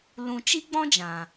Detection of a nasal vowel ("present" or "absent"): present